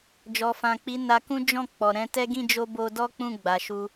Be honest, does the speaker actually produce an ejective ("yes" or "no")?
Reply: no